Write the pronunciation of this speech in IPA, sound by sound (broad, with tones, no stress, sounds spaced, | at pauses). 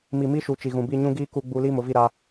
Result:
m i˨ m i˦ ʃ u˨ t͡ʃ i˨ ɣ ũ˨ b i˦˨ ɲ ũ˦ ɡ iː˦ k u˦ ɡ͡b u˦ l iː˦ m ʊ˨˦ v i˦˨ ɾ a˦